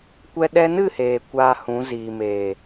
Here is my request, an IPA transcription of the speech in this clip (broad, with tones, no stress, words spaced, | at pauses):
kʷɛ˧ ɗɛ˧nɨ˦˨heː˨ kʷaː˧hũ˨˦ ziː˨meː˨